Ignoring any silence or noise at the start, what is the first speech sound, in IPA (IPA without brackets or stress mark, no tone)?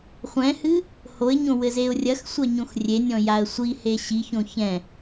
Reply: χʷ